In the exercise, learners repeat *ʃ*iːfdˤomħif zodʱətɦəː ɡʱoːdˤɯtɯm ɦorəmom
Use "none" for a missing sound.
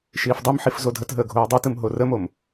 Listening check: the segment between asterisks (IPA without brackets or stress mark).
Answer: ʃ